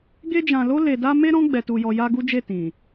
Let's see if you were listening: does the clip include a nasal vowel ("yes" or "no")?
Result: yes